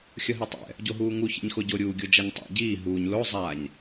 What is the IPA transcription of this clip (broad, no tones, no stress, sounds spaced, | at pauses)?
xʲ ʌ ɦ i tˤ ɛ̰ | ɟ o ɦ uː ŋ u ç ɛ̰ ɲ x o ɟ o ɾʲ uː ɡʲ o d͡ʒ a ɲ tˤ a̰ ɟ iː ɦ uː ɲ l o zˤ a ɲ